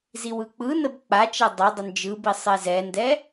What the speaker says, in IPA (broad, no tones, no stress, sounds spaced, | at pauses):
z i w ɯ k͡p ɯ n ə b k͡p a t͡ʃ ɛ dˤ ə dˤ ə n d͡ʒ ɯ b i sˤ e z ɛ n d ɛ